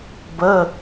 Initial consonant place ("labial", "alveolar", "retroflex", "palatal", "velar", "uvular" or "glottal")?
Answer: labial